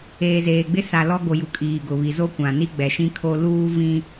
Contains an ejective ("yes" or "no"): yes